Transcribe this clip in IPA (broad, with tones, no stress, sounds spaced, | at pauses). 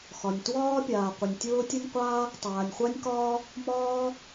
x ɒ˩ nʲ t w ɒː˥ pʲ aː˩ qʷ ə˩ nʲ tʲ ʊː˥ tʲ ə˥ nʲ qʷ aː˥ | tˤ aː˩ nʲ χʷ a˥ nʲ k ɒː˥ | m ɒː˥